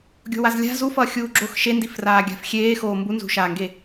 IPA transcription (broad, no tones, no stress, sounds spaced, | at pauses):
ɡʲ o̤ w a z lʲ a̤ z u f ʌː xʲ uː ɡ͡ǁ o x ʃ e n d i f r aː ɡʲ a̤ f xʲ eː x oː m b u n z ṳ ʃ aː ŋ ɡ e